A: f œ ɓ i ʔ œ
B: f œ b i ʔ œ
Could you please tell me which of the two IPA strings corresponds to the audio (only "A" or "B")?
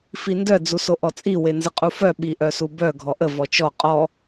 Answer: A